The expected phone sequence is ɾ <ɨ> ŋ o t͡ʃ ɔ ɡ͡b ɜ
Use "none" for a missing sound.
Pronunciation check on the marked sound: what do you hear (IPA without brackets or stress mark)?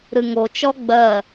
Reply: ɨ